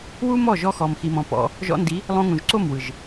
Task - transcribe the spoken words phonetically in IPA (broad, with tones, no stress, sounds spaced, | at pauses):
w u˦ m ɔ˦˨ ʒ ɔ˧ x ɔ˨ m x i˨ m ɔ̃˨ p ɔ̰˧ | ʒ ɔ̰˧ n d i˨˦ | lˠ õ˧ ŋ ũ˨ ʒ ǀ o˦˨ m w ɯ˨ ʒ